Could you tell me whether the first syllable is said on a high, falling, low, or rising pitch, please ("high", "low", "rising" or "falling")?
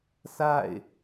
falling